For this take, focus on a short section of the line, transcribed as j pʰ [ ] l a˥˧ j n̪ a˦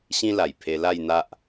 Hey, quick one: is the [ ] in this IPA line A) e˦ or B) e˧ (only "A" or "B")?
B